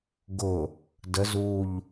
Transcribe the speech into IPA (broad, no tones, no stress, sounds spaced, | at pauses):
ɡ ʊ | d ə z u ʎ